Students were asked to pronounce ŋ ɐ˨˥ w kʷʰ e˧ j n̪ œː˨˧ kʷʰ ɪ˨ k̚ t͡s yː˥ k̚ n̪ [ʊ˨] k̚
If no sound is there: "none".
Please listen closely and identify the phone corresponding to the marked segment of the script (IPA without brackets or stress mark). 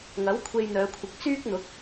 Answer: ʊ˨˥